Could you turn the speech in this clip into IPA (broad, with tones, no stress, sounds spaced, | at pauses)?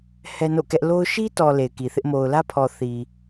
h ɛ˦ n o̰˦˨ k ɛ˦ ʔ l o˦ ʊ̯ ʃ i˦ t ɔ˨ l e˨ ɪ̯ k i˨ θ ɪ˦ ʔ m o˨ ʊ̯ l ä˦ pʰ ɔ˨ θ i˨